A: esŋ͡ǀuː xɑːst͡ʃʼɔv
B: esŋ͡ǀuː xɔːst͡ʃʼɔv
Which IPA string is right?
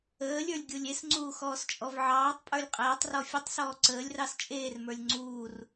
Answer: B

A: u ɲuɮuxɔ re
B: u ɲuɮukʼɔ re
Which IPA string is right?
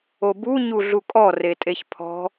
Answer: B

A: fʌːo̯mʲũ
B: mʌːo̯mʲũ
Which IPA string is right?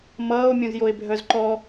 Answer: B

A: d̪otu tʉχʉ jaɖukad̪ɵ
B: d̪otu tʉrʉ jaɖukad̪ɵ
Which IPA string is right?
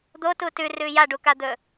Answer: B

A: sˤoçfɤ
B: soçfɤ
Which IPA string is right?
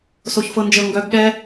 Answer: B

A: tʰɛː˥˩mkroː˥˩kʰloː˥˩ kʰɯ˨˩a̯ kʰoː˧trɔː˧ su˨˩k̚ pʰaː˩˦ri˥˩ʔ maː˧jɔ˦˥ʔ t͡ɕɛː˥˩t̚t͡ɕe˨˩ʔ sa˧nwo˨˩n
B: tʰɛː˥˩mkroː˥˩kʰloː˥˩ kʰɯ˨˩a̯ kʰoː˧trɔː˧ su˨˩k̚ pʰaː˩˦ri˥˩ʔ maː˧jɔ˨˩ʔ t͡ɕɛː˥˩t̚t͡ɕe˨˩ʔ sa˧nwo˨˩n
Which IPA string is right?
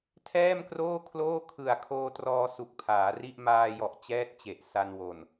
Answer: B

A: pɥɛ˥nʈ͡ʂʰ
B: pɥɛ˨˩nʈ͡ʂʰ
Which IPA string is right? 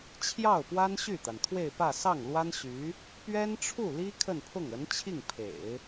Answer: A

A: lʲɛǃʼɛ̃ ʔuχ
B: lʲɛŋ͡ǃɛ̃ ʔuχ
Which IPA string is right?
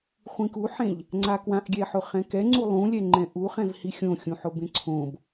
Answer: B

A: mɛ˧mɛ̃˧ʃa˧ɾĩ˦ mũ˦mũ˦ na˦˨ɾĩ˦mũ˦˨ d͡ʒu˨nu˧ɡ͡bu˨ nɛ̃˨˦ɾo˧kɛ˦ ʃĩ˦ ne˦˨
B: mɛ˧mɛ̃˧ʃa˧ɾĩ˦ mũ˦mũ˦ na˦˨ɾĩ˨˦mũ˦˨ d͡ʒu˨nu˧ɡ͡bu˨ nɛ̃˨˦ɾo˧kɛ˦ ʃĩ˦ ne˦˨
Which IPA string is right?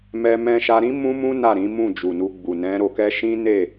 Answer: B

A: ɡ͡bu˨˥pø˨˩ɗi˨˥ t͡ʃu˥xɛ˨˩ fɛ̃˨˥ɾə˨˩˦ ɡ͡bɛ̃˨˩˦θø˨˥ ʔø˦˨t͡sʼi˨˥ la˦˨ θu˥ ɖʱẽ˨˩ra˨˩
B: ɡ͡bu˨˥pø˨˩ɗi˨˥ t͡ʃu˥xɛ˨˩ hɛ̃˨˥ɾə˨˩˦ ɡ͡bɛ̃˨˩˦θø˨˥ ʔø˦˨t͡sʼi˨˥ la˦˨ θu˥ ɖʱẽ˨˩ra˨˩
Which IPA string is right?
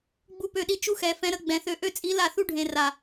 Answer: A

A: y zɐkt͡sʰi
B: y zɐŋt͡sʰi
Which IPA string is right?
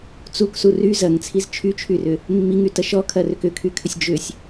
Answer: B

